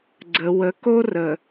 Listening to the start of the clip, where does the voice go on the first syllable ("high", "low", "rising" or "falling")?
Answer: low